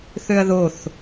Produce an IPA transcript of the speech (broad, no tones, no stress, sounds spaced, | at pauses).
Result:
θ ø ɐ̯ ð o θ